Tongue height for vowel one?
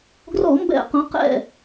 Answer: mid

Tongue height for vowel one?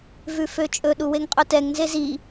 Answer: high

